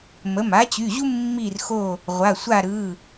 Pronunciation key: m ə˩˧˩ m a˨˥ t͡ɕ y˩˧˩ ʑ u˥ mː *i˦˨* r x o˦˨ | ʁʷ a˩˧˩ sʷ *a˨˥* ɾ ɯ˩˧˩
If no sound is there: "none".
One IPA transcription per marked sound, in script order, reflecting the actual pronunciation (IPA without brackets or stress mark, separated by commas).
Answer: i˦˨, a˦˨